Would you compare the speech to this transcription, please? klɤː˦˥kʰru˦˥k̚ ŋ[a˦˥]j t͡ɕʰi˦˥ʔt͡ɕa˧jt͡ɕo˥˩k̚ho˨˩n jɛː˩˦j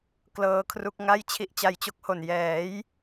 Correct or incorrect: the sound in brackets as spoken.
incorrect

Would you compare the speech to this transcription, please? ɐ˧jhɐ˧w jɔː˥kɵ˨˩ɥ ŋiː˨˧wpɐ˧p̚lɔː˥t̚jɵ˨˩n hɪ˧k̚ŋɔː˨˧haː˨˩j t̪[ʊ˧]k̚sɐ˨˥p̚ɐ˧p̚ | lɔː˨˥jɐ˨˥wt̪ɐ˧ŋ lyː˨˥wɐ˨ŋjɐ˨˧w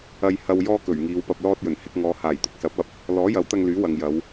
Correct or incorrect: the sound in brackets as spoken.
correct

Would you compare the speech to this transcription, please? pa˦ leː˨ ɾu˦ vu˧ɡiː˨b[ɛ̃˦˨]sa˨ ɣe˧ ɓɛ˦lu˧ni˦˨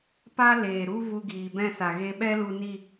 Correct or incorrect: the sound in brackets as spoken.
correct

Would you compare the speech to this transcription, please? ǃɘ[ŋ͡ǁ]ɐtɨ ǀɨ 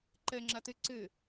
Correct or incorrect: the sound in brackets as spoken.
correct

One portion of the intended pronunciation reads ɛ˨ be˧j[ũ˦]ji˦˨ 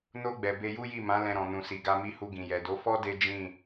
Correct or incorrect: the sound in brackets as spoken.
incorrect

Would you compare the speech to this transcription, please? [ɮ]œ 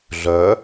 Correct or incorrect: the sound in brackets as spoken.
correct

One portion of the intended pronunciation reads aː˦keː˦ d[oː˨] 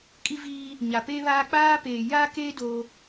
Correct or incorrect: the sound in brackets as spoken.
incorrect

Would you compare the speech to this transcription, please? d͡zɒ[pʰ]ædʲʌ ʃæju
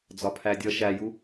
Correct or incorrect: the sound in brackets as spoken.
correct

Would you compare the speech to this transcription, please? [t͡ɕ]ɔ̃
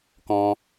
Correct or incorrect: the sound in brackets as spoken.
incorrect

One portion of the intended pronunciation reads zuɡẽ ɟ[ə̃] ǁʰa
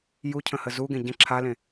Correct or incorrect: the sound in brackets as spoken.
correct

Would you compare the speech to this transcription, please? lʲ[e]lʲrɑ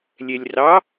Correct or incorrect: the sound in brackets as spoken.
incorrect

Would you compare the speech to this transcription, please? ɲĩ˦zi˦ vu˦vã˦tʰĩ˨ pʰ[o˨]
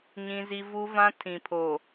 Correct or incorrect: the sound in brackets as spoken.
correct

